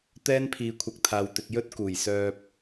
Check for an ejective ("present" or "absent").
absent